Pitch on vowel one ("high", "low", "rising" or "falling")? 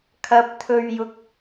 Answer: high